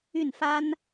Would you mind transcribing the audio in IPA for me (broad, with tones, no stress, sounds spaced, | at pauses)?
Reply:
y˥˩ n f a˥ n